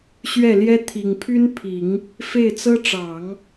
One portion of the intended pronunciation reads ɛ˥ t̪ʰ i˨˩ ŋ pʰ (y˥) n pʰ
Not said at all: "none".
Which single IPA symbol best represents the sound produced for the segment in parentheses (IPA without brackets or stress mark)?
y˥